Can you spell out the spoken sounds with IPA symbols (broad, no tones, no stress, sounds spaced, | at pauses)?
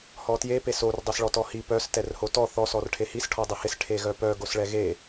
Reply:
h ɔ t j e p e s o r dˤ œ s ɭ ɔ t ɔ h i p œ s t ɛ r h o t ɔ θ ɔ s ɔ r ʈʰ e h i s ʈʰ ɔ dˤ ɛ h ɪ s ʈʰ e ɣ œ p œ ɡ o s ɭ ɛ ɣ e